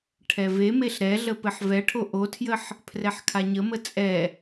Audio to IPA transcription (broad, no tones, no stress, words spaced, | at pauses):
ʈʰɛvemeɬ ɾɛɮə pɘħvɛʈʰo ʔotʰjəħ | pʰrɛħkʰaɲəmə t͡sʼɛ